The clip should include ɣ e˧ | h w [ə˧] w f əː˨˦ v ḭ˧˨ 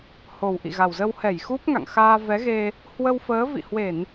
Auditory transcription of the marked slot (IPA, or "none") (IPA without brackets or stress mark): ə˧